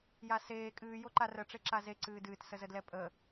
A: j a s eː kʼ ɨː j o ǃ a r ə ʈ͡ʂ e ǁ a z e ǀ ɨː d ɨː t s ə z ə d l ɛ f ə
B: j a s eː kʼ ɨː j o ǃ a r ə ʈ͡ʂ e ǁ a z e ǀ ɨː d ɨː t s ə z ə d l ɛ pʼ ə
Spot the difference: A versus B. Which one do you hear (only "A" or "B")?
B